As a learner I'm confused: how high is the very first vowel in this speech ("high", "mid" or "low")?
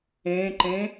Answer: mid